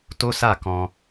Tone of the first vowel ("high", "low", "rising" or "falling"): high